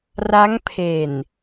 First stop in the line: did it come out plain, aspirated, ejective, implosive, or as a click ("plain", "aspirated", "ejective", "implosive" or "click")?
aspirated